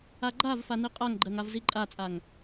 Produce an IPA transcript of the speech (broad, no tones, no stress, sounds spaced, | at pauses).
a ɡ͡ǃ a v f a n i qʼ a ŋ ɡ͡ǃ ɜ ŋ a v z i ǃʼ a t͡sʼ a ŋ